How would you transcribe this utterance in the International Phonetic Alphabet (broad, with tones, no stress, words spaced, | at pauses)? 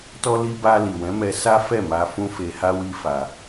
tɔ˦ li˧ ba˧ li˨wɛ̃˨˦mɛ˧ sa˦fɛ˦˨ma˧ fũ˦fe˧ha˦wi˦ fa˧